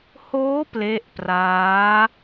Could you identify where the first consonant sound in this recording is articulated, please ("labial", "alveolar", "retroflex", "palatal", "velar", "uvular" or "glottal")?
glottal